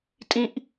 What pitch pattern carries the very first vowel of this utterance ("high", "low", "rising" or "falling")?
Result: high